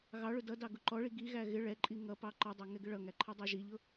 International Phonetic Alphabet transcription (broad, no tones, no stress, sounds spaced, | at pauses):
ɣ ɑ ɭ ʊ d ʌ d ɑ ɡ ʊ ǃ ɔ ɭ i ɡ i ɣ æ ɣ ɪ ɭ ɛ ǃʼ i ŋ ʌ p ɑ ǃ ʌ dˤ ɛ ŋ ɛ ɡ ɪ ɭ ʌ ŋ æ ǃʰ ɛ dˤ ɑ ʒ i ʎ ʊ